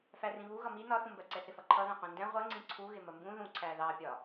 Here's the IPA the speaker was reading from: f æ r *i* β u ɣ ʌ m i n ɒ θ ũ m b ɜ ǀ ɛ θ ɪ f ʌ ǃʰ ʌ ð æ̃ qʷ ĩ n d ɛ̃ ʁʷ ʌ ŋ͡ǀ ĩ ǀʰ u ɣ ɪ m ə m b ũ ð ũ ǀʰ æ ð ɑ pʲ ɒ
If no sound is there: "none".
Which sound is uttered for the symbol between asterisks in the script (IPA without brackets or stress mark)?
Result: ĩ